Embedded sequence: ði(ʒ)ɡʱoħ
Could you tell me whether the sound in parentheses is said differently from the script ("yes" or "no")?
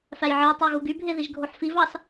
no